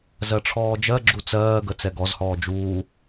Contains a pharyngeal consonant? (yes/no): no